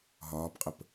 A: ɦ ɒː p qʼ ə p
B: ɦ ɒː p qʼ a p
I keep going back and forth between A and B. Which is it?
A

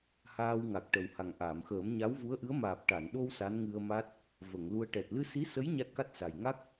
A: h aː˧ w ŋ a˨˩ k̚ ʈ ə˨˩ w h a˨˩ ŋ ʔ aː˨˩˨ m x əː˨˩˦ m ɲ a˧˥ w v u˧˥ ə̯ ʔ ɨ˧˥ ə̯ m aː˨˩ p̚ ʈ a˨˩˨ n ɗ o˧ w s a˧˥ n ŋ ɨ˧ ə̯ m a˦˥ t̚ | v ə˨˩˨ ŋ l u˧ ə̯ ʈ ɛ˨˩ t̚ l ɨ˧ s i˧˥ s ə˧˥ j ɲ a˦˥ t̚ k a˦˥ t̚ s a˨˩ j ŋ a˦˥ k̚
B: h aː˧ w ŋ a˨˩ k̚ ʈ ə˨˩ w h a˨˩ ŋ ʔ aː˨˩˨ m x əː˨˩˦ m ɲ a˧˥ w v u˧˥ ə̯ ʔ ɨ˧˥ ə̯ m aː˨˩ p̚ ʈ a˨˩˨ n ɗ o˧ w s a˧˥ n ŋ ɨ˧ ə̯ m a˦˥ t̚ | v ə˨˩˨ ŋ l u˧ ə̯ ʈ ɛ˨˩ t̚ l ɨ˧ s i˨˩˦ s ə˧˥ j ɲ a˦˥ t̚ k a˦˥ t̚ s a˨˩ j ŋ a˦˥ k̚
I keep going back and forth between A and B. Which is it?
A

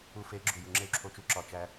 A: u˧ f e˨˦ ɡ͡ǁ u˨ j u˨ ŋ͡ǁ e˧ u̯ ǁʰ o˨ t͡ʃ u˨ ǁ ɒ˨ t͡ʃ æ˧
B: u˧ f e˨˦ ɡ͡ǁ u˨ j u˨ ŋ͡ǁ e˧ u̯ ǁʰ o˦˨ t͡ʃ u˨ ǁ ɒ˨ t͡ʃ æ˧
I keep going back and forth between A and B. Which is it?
A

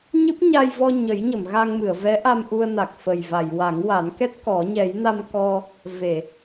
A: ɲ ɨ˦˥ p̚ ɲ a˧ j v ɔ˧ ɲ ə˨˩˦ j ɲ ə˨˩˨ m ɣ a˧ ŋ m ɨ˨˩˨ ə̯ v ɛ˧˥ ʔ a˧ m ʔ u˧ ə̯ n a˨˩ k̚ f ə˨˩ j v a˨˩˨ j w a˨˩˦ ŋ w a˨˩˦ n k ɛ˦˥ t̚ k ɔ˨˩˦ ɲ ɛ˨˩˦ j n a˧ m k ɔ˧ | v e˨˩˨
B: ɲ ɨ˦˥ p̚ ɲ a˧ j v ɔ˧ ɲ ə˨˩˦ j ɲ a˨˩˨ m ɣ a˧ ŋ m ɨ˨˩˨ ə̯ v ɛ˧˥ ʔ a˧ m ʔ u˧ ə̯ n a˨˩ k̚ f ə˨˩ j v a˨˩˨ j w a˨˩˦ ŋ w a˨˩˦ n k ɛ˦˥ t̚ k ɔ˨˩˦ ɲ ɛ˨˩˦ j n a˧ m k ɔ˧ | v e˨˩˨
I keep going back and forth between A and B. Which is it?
A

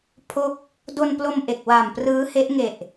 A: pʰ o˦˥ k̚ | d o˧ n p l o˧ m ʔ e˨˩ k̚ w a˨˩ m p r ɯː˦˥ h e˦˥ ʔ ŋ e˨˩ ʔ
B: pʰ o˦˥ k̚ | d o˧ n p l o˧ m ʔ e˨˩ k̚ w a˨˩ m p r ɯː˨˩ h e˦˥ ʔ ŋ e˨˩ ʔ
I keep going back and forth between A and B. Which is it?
A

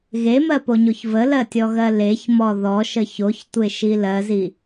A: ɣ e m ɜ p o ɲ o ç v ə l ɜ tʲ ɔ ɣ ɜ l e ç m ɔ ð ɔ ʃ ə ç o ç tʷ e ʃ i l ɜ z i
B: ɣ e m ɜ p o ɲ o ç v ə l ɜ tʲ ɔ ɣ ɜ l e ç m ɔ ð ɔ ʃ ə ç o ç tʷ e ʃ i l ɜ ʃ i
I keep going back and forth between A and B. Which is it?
A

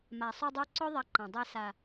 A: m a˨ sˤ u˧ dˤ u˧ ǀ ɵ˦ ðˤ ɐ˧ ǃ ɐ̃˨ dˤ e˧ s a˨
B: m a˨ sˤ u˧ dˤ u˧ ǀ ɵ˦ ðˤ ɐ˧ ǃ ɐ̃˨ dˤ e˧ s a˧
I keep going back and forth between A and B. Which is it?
A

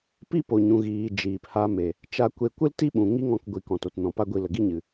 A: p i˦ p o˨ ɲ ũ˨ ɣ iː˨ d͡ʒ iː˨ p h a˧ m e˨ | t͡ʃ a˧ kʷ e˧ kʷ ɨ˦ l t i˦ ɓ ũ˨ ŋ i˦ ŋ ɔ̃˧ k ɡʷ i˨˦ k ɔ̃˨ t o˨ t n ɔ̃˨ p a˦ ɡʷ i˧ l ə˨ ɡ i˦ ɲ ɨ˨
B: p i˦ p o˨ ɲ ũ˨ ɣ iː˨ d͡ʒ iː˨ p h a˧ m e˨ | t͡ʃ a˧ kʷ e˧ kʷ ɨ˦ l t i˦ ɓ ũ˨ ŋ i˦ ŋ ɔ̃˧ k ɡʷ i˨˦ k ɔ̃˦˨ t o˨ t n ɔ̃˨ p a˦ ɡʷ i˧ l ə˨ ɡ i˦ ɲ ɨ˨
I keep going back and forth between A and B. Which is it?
A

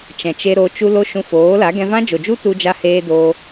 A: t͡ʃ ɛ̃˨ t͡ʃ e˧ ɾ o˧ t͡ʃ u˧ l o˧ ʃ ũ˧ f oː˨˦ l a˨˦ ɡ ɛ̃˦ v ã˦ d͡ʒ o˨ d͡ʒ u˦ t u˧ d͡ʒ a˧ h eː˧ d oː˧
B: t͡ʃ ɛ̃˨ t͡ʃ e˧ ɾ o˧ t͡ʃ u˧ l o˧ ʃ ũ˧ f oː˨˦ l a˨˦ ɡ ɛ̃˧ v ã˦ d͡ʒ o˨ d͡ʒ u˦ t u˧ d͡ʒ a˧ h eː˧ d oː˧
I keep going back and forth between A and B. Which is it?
B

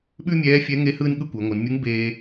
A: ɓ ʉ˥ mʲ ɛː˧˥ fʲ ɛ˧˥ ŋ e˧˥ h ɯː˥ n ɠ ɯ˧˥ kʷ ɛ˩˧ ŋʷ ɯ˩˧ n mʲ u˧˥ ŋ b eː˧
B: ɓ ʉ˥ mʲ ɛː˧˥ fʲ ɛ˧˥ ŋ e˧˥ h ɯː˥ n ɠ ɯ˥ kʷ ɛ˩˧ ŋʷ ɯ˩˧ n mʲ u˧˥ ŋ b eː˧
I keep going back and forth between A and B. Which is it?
B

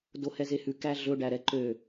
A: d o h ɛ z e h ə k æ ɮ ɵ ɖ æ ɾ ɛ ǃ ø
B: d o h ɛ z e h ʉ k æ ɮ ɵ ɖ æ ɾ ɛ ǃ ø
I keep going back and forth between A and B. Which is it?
B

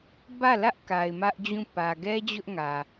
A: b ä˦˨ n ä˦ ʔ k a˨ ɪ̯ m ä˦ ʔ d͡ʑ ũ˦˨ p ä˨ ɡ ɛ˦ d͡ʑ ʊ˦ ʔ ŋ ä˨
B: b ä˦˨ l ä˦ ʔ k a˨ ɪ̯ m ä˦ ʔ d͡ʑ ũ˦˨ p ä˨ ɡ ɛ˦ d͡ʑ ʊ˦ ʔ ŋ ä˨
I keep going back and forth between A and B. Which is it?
B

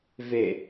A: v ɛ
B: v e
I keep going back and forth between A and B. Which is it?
B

